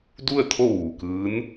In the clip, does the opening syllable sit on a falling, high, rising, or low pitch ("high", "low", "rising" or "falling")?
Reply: falling